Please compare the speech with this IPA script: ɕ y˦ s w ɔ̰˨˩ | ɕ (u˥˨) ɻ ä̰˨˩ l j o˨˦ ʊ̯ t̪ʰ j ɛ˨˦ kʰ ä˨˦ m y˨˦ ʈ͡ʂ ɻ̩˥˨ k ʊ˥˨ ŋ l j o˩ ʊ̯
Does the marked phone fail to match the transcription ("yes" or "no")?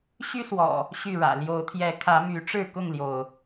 yes